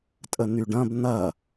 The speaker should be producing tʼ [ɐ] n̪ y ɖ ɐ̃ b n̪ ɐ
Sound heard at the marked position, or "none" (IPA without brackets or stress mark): ə